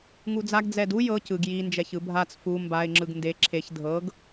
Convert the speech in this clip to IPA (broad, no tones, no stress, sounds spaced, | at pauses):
ŋ u d͡z a ɡ d͡z ɛ d u j ɤ c ɯ ɡ j i n d͡ʒ ɛ ç ɯ bʱ a t͡s f u m b a ɪ̯ ŋ͡ǁ ɯ ɡ n d e ǁʰ e ç dʱ ɤ ɡ